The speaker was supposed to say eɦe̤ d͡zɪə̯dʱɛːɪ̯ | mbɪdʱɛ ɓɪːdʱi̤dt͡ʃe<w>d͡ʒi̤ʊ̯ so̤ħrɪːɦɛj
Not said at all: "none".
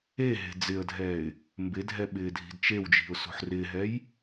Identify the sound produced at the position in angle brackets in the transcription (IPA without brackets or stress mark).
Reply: w